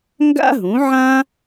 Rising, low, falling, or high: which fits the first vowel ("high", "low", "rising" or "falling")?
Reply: high